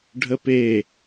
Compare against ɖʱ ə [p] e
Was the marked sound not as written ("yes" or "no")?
no